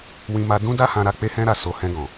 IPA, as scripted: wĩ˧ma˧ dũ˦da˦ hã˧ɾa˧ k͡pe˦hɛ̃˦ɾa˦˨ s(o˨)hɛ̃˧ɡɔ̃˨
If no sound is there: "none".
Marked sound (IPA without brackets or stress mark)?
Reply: o˧